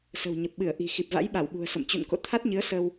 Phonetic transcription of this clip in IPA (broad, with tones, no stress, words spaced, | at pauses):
sə̤˨˩wɲə˨˩p̚ɓɨ˧˩ə̯ʔi̤˨˩ xi˨˩p̚va̰˧˥jɓa˧˩wɓṳ˨˩ə̯ sə̰˧˨m t͡ɕṵ˧˨nko̰˧˨t̪ʰa˦˥t̚ɲɨ˨˦ə̯ sə˧w